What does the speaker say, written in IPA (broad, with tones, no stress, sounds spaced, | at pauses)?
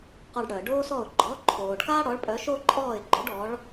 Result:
q ɔ˧ ɖ ɽ œ˩ ə̯ ɖ oː˥ s ɔ˥˩ ʊ̯ ɡ͡ǃ ɔ˩˥ ǃʰ oː˩ ɖ k aː˥ ɽ ɔ˩˥ ɭ pʼ œ˩˥ ʃ o˥ ǃʼ ɔː˥˩ ɪ̯ ɡ͡ǃ o˩˥ ɖ ɔ˩˥ ɭ